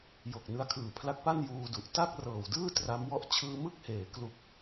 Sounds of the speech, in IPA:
j o˨˩ k̚ n ɯ˧ a̯ kʰ ɯː˨˩ pʰ l a˦˥ k̚ p a˥˩ n j uː˧ d u˨˩ ʔ t a˥˩ k̚ r ɤː˨˩ w d ɯː˥˩ t r a˦˥ m w ɔ˦˥ ʔ t͡ɕʰ ɯː˧ m ɯ˥˩ k̚ h eː˩˦ k l u˨˩ k̚

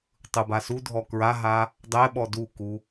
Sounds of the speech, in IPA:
tˤ ɯ b a s u dʱ ɔ k ɹ a ɦ a | dˤ ɛ ɓ ɔ d u k u

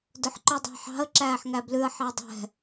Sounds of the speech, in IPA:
d ɵ ħ ǃ ɵ dˤ ɑ̤ ħ ɑ̤ ə̯ ǁ æː ħ ŋ æ b l ʉ ə̯ ħ ɑ dˤ ɛ̤

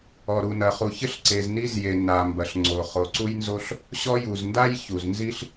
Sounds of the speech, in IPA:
ɔ˩ ɾ u˩ n ɐ˩ χ u˩ ç ɘ˥ ɬ ǀ e˩ z n i˥ z j e˩ n a˩ m b ɐ˩ ɬ ŋ͡ǀ o˩ χ o˩ ǀ u˥ j n z o˥ ɬ | ɕ ɔ˥ j u˩ z n d a˥ j ç u˩ z n z i˥ ɬ

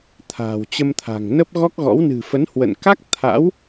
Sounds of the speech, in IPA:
t̪ʰ a̤ː˨˩ w t͡ɕ ə˧ m t̪ʰ a̤˨˩ ŋ n ə˦˥ p̚ ɣ ɔ˦˥ k̚ ɣ ɔ̰˧˥ w n ɨ̤˨˩ f ə˨˦ n h w ə̰˧˨ n k a˦˥ k̚ t̪ʰ a̰˧˥ w

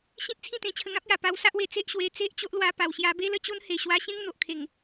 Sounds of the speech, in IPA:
ɕ ĩ˦ t̚ t͡sʰ ĩ˥˧ t̪ ẽ˧ t͡ɕʰ ə˧ ŋ ã˦ p̚ j a˨˩ p a˧ w s a˦ ʔ w e˧ t͡s e˦ ʔ ɕ w e˧ t͡s e˦ ʔ t͡ɕ o˦ ʔ l w a˧ p a˨˩ w ɕ j a˧ b e˦ l ə˥˧ t͡ɕ o˦ n h e˨˩ ɕ w a˧ ɕ ẽ˦ ŋ n̪ o˨ ʔ kʰ e˨˩ ŋ

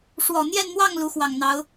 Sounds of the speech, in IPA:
ʂ w ɔ˨˩ n̪ j ɛ˥˧ n m w ɑ˥˩ ŋ l u˧˥ x w ɑ˨˩ ŋ n̪ ɑ˧˥ ʊ̯

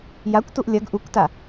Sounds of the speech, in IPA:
j a kʷ t u ʔ lʲ ɐ ɡ ʔ u kʷ t a

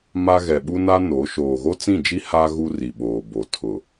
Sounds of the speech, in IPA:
m a˦ ɣ ɛ˨ ɓ u˦ n a˦ n o˨˦ ʃ oː˨ ɣ o˦ t͡s ĩ˦˨ d͡ʒ i˦ h a˦ ɣ u˦ r i˨ ɓ oː˨ b o˨ tʰ ʊ˨

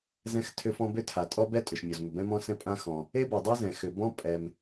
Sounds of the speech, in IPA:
z ɛ̃˥ x tʰ ʏ˥ f ɔ̃˥ b ʏ˥ tʰ a˩ tʼ ɔ˥ b ɛ˥ tʼ ʏ˩ ʃ mʲ ɔ˩ z m ʏ˩ b ɛ̃˥ m ɔ̃˥ s ɛ̃˥ pʼ ã˥ x ɔ̃˩ | e˥ b ɛ˩ dˤ e˥ z ɛ̃˩ x ʏ˩ b ɔ̃˥ pʼ ɛ˩ m

